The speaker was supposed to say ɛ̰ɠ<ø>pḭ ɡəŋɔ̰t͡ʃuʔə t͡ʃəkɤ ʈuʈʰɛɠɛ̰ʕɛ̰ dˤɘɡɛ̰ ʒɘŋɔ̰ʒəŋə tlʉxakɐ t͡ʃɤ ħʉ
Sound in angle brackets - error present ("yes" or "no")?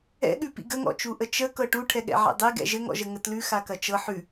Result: yes